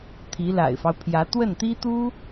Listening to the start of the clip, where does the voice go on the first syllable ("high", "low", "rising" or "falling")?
rising